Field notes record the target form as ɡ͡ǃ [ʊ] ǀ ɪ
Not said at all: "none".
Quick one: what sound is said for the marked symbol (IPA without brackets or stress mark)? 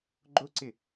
ʊ